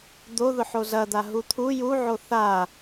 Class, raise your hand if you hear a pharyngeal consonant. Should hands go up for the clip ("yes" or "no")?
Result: yes